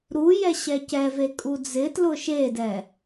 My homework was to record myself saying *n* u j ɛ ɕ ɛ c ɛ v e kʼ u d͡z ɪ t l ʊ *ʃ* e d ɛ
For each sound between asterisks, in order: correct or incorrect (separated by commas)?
incorrect, correct